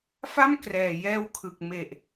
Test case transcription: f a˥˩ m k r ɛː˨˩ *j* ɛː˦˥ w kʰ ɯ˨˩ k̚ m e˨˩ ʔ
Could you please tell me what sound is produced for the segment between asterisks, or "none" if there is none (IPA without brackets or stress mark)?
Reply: j